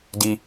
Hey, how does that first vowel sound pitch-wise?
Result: high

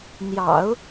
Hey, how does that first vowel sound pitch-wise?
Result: low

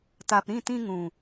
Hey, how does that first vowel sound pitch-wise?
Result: low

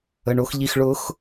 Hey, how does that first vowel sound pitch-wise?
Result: low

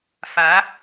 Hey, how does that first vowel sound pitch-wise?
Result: rising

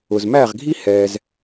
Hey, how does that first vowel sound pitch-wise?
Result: low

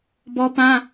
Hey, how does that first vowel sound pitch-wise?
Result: high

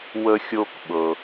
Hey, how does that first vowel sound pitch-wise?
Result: high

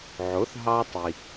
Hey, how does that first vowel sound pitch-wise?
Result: rising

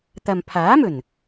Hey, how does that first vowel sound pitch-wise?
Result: low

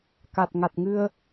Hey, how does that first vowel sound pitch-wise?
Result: low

